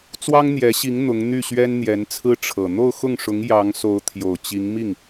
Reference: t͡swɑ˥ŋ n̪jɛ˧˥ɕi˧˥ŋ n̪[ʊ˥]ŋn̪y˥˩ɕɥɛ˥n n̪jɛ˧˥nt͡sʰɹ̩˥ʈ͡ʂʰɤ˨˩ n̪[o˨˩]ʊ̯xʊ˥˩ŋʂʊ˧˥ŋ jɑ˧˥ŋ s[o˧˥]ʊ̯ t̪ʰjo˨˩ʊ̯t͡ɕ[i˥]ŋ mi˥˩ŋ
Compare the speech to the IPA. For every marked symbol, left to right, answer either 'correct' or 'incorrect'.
incorrect, incorrect, correct, incorrect

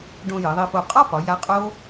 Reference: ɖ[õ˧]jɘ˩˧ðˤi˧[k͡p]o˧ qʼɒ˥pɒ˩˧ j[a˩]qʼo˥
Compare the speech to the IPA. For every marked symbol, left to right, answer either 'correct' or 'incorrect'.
correct, incorrect, incorrect

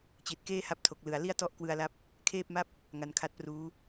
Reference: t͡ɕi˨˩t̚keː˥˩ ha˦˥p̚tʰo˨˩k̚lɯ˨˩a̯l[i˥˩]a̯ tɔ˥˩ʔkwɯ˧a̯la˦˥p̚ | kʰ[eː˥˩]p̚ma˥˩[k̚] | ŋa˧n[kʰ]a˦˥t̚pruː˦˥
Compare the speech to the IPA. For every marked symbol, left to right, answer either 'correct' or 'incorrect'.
correct, correct, incorrect, correct

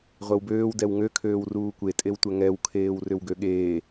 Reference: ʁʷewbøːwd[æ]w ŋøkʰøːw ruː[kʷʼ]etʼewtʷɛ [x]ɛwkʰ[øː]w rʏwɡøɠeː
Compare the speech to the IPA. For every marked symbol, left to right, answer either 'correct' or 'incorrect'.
incorrect, incorrect, incorrect, incorrect

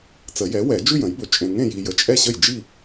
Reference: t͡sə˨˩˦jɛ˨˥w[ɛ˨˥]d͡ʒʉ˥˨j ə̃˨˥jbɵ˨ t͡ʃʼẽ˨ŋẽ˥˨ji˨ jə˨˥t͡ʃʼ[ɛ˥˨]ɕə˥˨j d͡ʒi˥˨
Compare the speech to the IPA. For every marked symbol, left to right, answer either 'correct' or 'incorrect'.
incorrect, correct

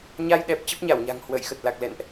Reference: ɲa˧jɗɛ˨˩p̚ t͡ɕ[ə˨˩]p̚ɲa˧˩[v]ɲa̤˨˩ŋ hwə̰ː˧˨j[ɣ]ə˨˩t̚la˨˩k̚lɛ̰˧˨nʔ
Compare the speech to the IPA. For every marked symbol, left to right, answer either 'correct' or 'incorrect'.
incorrect, incorrect, incorrect

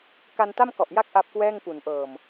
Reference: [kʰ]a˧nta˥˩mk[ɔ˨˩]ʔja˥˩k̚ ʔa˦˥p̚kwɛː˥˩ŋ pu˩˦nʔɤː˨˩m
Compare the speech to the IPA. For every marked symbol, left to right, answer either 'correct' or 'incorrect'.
incorrect, correct

